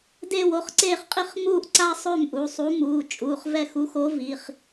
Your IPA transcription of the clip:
d eː˥˧ w o˩˧˩ χ ǀ eː˥˧ χ qʼ i˥˧ χ m uː˥˧ ʔ ǀ a˥ sˤ ø˥˧ m ʔ u˩˧˩ sˤ u˧˥ m uː˩˧˩ t͡ʃʼ uː˩˧˩ χ v ɛ˥˧ x u˧˥ x o˧˥ v i˩˧˩ χ

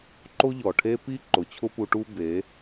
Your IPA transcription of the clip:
ǃ o˦ ʎ ɔ˨ ʈʰ e˦ p i˦ ǃ ʊ˨ t͡ɕʰ ʊ˦ p u˧ ʈ u˦ b e˨˦

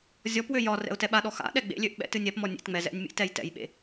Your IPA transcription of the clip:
zʲ ɔ p w ø j ɒ r ɛ̰ ʊ̯ t ɛ ɓ a ɗ ɔ x a̰ ɗ ɛ ɡ͡b ḛ lʲ ø ʔ ɓ ɛ̰ t ɨ nʲ ɛ p m ɔ nʲ ḛ t ŋ͡m ɛ z ɛ̰ nʲ mʲ ḛ t ɛ j t ɛ̰ j ɓ ḛ

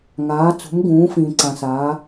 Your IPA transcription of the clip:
ŋ aː˩˧ t͡s ṳ˩˧ m ɡ ũː˩˧ f ĩː˩ ǀ ã˩ s aː˩˧

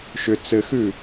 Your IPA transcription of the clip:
ʃ ʏ t͡s ɘ x ʉ

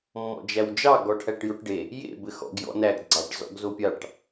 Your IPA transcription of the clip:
mː ɔ̰ d͡ʒ æ w d͡ʒ ɑ ɡ ɔ ʈʰ æ ʈ j o ʈ ɖ e | j ḛ b ɘ x ɔ̰ ɡ j ɔ̰ n æ ɡ ɡ͡ǀ ɑ ʈ z ɔ̰ ɡ z o pʲ ɑ ʈ

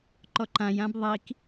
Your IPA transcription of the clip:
ǃ ɔ ǃ ã j ã b ðˤ i k

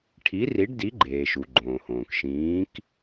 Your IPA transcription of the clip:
ʈʰ i˨˥ r i˨˥ ɖ d i˨˥ ɡ͡ǃ eː˩ ʃ u˩ ɡ͡ǃ õː˩ h õː˩ k ʃ ĩː˨˥ k

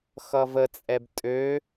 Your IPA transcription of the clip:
x ʌ v ə t͡sʼ ɛ b tʼ ø

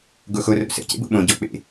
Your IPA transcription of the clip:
ɡ o x o r o̰ s ə̰ c ḛ b o̰ ɓ õ ɟ ɔ k͡p ḛ

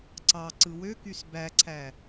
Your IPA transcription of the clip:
ǀ ɑ ǀ ɯ w ø k y s b æ ǀʰ æ

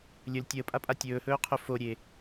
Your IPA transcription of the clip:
lʲ ɵ l tʲ əː pʼ a pʼ a tʲ ɵː h ɵː qʰ ɵ f o ɾʲ e

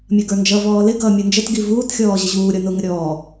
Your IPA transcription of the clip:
mʲ ʌ ɡ ə˞ n d͡ʒ ʌ v ɔː l ɪ ɡ ʌː mʲ u n d͡ʒ ə t ɡ i v uː t xʲ ɔː ʑ ə ʑ uː ɾʲ ɔ n ʊ ŋ ə ɾʲ ɔː

